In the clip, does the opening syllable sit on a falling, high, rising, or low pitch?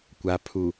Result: low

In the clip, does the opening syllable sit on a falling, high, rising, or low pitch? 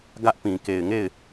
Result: high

